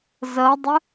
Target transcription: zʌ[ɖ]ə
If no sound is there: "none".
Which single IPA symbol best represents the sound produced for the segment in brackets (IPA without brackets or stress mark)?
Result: dˤ